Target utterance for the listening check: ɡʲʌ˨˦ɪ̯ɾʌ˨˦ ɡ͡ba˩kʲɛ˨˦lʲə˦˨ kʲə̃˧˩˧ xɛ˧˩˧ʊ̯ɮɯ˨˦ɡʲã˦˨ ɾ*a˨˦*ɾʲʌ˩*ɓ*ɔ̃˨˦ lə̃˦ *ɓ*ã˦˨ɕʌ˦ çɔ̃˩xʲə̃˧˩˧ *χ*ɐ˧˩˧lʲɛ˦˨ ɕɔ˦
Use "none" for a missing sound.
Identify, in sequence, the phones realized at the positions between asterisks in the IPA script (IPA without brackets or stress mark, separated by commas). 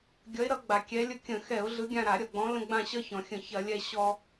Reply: a˧˩˧, ɡ͡b, ɡ͡b, ç